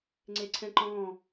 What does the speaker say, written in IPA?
ŋ͡ǀ e ǀʰ ɛ̃ ǃ ɔ̃ː

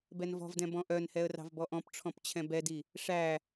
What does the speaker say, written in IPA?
b ɛ n v ɔ̤ v d ɛ̃ b ɔ̃ ʔ œ n h ɛ ə̯ r ɑ̤ v b ɔ ʔ ɔ̃ p ʈ͡ʂʰ ɔ̃ p t͡ɕʰ ɛ̃ b ɛ d i | ʂ æ

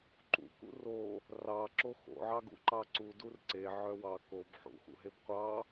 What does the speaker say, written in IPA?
ǃ ṵ k ṵ r o | r ɑ ǁ o x o̰ ʕ ɑ ɡ ṵ ǃ ɑ ǀ u d u r ǀ e ʕ œ w ɑ k o b ħ ṵ x ṵ ɦ e b qʷ ɑ

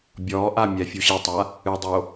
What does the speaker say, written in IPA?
bʲ ɔː ʔ a mʲ ɛ fʲ u ɕ i tˤ a | ɨ dˤ o

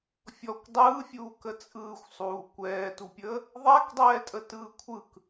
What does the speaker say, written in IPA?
fʲ ɔ kʷ dˤ ɯː fʲ uː k ə t͡sʼ ɯː xʷ sˤ uː kʷ ɛː t u pʲ əː | ðˤ æ k dˤ ɛː tʼ ə t ɯː kʷʰ ɯ k

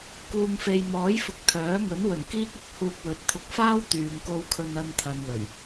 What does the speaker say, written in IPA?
k uː˨ ŋ f e˨ j m ɔː˨˥ j f ʊ˨ k̚ t̪ʰ œː˨˥ ŋ ɵ˨˥ n w ɵ˨˩ n k iː˥ k̚ ʊ˧ k̚ h uː˧ k̚ w ɵ˨˥ t̚ t̪ʰ ʊ˧ k̚ f aː˥ w t̪ yː˨ ŋ k o˧ w kʰ ɵ˧ n ɐ˧ n t̪ʰ ɐ˨ n l ɵ˨˩ ɥ

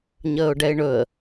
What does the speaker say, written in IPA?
ɲ əː ʊ̯ ɖ ɛ ɪ̯ ɳ ɵ ə̯

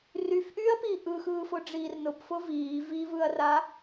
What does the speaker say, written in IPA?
r y f ʔ yː ɐ̯ p iː ʔ ɯ x ɯː f ʊ ɖ͡ʐ iː r n ʊ p f ʊ v iː v i v ɯ ɐ̯ r a

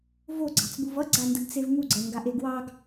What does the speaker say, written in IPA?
v o ɡ͡ǀ ɑ̤ t͡s b u v ʌ ɡ͡ǀ a n d ə ɡ t͡s e v ŋ u ɡ͡ǀ ɜ ŋ ɡ a ʔ e ɡ w ɑ ɡ

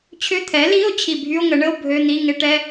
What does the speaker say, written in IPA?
t͡ɕʰ ʏ˧˥˧ t̪ʰ ɛ˩˥ l i˧˥˧ o̯ t͡ɕʰ i˧˩ bʱ y˧˥˧ o̯ ŋ ə˩˥ ɳ ə˧˥˧ o̯ bʱ ø˧˥˧ n̪ i˧˥˧ ŋ ɪ˧˥ ʈ ɛ˧˥˧

